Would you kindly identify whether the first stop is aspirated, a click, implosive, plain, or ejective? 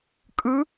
ejective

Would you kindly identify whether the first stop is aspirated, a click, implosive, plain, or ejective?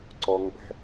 click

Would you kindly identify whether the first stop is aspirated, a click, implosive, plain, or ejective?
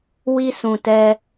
plain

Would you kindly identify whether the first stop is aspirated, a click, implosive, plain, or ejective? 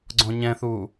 click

